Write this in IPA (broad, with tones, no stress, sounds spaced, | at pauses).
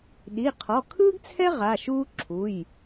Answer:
ɗ i˩˧˩ qʰ ɔ˩˧˩ kʰ ɯː˥ ɡ t͡sʰ ɛ˥ ʁ a˩˧˩ ʃ uː˥ ǁʰ u˩˧˩ j